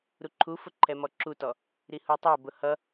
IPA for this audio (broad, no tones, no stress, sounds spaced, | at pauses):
ɾ u ǃʰ u f ʊ ǃʰ ɛ m ɔ ǁ u t ɔ | ɾ i h u tˤ ɛ b ʊ h ʌ